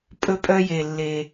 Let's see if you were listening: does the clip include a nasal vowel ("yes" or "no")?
no